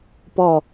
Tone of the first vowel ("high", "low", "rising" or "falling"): falling